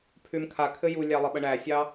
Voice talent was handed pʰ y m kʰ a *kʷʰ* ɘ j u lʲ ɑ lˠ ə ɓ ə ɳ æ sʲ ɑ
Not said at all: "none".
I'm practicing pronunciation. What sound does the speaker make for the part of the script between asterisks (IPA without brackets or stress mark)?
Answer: kʰ